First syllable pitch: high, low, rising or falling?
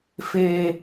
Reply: high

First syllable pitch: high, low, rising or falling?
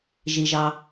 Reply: low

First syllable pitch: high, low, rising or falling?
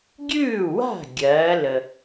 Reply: falling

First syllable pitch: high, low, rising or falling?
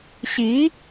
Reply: rising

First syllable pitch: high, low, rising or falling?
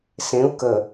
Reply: rising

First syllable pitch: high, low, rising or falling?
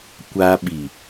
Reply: high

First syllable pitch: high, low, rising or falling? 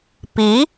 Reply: rising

